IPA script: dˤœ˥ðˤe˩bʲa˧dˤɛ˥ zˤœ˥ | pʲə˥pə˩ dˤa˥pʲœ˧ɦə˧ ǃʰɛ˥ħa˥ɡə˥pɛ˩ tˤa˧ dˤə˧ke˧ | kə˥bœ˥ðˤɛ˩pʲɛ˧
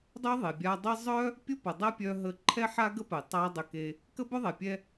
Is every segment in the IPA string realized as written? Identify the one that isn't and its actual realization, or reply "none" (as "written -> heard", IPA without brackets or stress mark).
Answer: none